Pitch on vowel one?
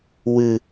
high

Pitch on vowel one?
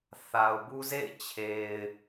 low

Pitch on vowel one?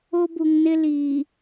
high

